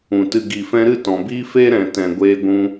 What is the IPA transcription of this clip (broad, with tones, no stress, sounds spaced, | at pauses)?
ũ˨ t ɨ˨ ɡ i˨ f ɛ̃˧ ɾ ɨ˦˨ t ɔ̃˨ b iː˦ f eː˦ ɾ ɛ̃˨ t ɛ̃˨ ɡʷ eː˧ ɡʷ ũ˧